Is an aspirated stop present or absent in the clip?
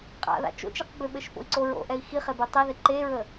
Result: absent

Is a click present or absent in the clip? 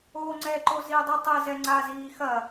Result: present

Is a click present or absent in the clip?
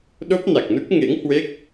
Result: absent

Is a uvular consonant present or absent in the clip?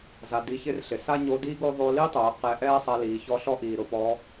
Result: present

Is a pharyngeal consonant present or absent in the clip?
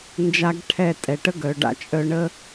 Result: absent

